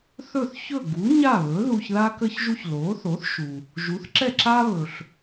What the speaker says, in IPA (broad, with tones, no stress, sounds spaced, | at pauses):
θ ɵ˥˩ θ ç ɵ˥˩ ɡ u˩˥ ɲ a˥˩ β ɵ˩˥ ð u˧ ç ð a˥ k ə˥ ç ʒ u˥ ç l o˩˥ θ o˩˥ θ ʃ u˩ | ʒ u˩˥ θ ǁ ɛ˥˩ ǁ a˥ β ɵ˩ ɬ